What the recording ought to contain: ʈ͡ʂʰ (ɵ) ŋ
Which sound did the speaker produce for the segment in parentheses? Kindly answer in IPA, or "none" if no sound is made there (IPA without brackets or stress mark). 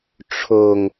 o